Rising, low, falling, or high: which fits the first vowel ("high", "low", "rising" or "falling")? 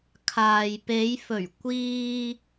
low